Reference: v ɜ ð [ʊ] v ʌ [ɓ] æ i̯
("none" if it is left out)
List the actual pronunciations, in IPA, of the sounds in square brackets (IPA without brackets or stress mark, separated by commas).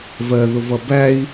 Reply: ʊ, b